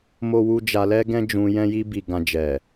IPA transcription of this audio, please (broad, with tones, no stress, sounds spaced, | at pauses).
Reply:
m o˦ w u˦ d͡ʒ a˧ l ɛ˦ ɡ ɛ̃˦ d͡ʒ ũ˧ j ɛ̃˦ j i˦ b i˧ ɡ ã˧ d͡ʒ ɛ˨